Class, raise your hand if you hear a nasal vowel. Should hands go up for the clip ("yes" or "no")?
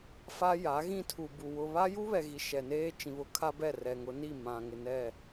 yes